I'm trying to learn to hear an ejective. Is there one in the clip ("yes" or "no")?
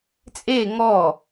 yes